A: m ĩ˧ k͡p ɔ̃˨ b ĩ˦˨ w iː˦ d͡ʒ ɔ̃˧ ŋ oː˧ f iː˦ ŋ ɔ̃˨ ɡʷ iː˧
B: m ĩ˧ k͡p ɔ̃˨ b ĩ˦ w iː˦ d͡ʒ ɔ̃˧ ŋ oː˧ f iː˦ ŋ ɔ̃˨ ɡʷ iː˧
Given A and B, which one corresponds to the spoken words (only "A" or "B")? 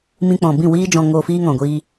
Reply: A